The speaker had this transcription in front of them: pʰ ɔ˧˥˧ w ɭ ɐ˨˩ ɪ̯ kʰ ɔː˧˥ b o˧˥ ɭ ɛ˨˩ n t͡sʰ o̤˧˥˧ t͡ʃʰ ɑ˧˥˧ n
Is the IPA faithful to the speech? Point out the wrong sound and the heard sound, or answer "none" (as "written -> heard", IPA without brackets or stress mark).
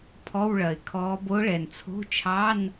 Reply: none